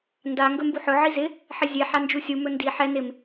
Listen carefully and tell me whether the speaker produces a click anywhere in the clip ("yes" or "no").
no